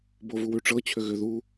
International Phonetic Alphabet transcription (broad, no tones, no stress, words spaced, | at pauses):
bovuwʉʈ͡ʂɤ t͡ɕʰʏɣʏ ðu